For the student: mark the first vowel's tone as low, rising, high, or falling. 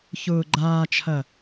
low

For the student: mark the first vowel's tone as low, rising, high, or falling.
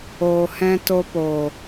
low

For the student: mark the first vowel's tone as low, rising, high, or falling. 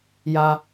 low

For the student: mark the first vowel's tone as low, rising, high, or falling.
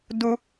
high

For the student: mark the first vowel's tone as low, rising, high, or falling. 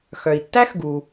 low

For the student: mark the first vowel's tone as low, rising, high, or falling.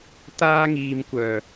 high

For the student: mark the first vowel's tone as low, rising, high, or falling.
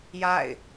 falling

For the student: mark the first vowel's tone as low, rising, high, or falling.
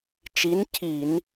rising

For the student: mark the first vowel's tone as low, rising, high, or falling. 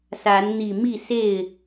rising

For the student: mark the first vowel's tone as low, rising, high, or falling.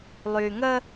low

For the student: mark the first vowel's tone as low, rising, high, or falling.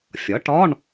rising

